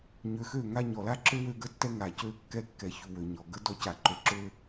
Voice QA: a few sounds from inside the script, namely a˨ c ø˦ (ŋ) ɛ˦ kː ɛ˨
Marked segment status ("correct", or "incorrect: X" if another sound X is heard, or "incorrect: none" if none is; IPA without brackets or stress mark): incorrect: kː